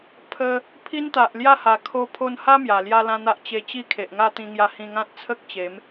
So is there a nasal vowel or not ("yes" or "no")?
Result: yes